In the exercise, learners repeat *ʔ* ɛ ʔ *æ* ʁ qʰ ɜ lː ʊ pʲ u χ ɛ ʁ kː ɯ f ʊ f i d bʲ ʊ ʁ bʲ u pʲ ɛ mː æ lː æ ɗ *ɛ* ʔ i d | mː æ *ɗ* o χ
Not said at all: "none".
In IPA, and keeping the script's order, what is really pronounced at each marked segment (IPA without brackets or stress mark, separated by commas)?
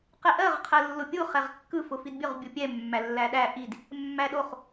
q, ɜ, æ, ɗ